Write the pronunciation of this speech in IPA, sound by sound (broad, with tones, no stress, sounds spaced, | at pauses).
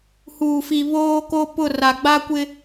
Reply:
h uː˨ f i˨ β oː˦ k o˦ p ʊ˦˨ r a˨ ɡ͡b a˦ kʷ ɪ˦